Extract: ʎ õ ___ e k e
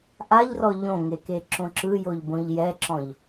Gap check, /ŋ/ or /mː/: ŋ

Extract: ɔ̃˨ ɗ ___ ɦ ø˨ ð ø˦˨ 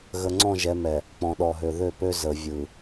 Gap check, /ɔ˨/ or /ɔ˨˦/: ɔ˨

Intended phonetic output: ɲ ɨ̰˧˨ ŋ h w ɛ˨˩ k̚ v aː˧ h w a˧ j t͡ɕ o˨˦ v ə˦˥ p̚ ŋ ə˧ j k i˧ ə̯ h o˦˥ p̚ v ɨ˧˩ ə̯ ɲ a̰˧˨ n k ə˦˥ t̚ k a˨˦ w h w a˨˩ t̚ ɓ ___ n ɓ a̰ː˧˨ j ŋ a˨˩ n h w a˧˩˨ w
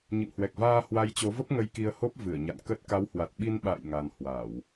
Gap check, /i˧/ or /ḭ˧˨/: i˧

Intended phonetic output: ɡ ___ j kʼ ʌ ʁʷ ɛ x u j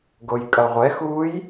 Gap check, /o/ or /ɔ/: o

